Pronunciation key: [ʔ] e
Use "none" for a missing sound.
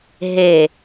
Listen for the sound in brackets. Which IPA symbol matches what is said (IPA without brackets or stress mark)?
ɦ